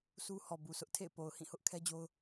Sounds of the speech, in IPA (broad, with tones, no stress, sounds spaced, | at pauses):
s u˦ h ɔ˨ b u˨ sʰ ʊ˦ ʔ tʰ ḛ˦˨ ɪ̯ p o˨ ʊ̯ h ĩ˦˨ h ʊ˦ ʔ kʰ ɛ˦ d͡ʑ o˦ ʊ̯